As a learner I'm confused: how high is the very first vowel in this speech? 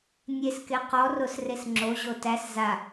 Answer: mid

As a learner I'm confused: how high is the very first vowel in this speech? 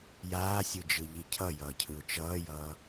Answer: low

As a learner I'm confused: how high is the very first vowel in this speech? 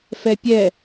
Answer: mid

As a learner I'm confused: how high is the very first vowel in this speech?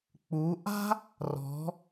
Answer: high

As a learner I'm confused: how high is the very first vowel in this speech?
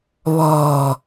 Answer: mid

